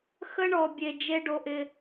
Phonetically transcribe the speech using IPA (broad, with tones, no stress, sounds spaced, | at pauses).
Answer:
x ə˦ ɳ ɔ˨ bʲ e˨ d͡ʒ e˦ ɖ o˧ ʔ ɪː˧